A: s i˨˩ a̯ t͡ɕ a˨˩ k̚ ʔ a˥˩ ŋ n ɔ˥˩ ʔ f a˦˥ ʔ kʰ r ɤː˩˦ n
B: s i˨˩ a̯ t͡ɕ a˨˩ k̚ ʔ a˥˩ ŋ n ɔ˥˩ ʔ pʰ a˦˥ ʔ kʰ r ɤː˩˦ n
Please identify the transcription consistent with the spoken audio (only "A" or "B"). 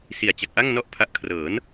B